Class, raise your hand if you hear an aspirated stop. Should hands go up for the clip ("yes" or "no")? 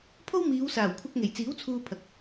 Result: yes